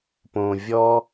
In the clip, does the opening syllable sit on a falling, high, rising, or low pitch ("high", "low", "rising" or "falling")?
low